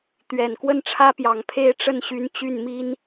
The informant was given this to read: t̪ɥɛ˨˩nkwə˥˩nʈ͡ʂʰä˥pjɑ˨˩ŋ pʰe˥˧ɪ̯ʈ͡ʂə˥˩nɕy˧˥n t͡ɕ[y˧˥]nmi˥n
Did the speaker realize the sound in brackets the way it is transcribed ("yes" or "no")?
no